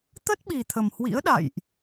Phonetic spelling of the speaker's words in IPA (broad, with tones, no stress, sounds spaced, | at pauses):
t̪ ə˦˥ t̚ ɓ i˨˩ t̪ʰ ə˨˩ m h w ḭ˧˥ ə̯ ɗ a̰˧˨ j ʔ